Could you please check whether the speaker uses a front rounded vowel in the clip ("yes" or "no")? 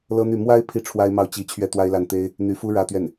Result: yes